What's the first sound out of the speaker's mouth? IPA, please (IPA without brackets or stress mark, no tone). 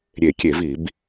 ɾʲ